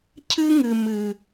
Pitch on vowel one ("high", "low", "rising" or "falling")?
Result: high